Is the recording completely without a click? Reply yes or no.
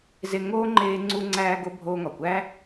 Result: no